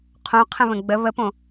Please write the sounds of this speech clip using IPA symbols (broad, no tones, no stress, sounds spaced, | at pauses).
qʰ õ qʰ ə̃ β ə̃ ɡ͡b ə β ə p õ